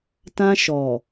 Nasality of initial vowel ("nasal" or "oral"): nasal